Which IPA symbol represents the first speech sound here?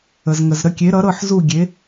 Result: ə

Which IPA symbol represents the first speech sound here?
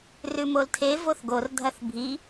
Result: r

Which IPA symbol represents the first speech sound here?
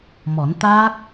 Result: m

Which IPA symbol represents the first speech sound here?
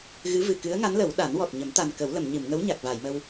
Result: ɣ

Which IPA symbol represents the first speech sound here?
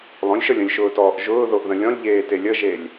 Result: lˠ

